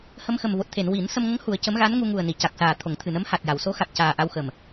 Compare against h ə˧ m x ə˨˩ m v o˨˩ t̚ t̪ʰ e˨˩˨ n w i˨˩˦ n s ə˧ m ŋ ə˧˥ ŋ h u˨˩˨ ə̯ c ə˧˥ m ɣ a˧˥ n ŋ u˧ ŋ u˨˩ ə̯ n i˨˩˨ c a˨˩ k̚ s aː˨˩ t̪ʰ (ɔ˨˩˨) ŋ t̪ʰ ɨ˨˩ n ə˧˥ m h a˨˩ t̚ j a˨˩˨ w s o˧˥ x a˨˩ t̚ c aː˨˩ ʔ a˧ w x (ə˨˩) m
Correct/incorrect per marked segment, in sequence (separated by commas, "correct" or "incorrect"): incorrect, correct